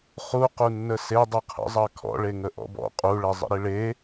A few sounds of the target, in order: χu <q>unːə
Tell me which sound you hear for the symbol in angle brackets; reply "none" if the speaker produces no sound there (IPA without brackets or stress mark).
q